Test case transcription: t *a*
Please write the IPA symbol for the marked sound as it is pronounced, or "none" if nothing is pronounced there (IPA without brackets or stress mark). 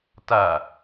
a